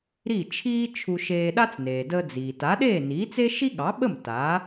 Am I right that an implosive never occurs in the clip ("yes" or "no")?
no